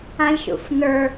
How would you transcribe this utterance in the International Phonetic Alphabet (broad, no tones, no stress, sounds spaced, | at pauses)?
ã lʲ ʃ ṵ f n ə˞